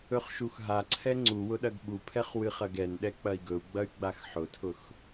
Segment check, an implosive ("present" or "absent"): present